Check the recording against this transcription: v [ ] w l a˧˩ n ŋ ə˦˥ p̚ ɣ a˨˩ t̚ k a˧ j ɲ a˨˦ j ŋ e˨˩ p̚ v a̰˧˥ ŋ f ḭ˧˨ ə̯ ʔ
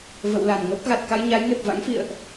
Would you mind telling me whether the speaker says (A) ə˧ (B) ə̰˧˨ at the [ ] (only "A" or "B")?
B